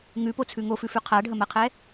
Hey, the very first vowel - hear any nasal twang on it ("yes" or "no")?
no